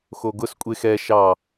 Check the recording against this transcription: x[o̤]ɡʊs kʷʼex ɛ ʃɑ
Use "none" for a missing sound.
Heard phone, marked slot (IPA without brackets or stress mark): o